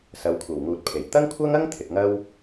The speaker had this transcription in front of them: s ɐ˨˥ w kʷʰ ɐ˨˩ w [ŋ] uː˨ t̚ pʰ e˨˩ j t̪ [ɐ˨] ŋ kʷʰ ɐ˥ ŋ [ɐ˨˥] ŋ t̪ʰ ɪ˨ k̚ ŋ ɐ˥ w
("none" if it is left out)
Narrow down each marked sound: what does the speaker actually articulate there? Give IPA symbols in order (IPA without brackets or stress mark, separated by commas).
ŋ, ɐ˥, ɐ˥